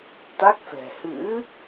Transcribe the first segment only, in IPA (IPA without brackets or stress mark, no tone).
t̪